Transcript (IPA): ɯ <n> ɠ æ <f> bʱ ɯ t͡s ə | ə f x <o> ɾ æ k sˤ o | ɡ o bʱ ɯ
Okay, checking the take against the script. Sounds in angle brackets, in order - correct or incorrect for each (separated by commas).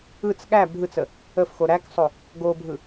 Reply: incorrect, incorrect, correct